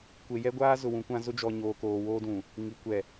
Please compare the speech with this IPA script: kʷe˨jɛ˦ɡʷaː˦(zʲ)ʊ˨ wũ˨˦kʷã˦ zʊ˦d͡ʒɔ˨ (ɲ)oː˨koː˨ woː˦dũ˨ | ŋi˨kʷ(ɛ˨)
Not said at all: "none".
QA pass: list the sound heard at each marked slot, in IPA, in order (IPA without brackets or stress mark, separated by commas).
z, ɲ, ɛ˨